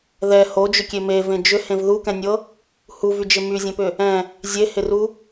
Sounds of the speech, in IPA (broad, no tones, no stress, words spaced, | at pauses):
ðɛ hod͡ʒʏkʲe mevẽ d͡ʒʏhẽv ðukɛ̃nʲɤ | huvyd͡ʒɪ myzʲɛ̃pʏ | ɛ̃ | zʲehɪru